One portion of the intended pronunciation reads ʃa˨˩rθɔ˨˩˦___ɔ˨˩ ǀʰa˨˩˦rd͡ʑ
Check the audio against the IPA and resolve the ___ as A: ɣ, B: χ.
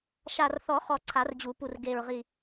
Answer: B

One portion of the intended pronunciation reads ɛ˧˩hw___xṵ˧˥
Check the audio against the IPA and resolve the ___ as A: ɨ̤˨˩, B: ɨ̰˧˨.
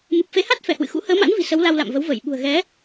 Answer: B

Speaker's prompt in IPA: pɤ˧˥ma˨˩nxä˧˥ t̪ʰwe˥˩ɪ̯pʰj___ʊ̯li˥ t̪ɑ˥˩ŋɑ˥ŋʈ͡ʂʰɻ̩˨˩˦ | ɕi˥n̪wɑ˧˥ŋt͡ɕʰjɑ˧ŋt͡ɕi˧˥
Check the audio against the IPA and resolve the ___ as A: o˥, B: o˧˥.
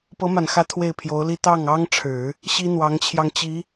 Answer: B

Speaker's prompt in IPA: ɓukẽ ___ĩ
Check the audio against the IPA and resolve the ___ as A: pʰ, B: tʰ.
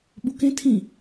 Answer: B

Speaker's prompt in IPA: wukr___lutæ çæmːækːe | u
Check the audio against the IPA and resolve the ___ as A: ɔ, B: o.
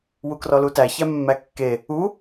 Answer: A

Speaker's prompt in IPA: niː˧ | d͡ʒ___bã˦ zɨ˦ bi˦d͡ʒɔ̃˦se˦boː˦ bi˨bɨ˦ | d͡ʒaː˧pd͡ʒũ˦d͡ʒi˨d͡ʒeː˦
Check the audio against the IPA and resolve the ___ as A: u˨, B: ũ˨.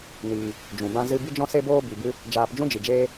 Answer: B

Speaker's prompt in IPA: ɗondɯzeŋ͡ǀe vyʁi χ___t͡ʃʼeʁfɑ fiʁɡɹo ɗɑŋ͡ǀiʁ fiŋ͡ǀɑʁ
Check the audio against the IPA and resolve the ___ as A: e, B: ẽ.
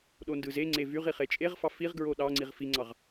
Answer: A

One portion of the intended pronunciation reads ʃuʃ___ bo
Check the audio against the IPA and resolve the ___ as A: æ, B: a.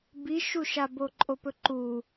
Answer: B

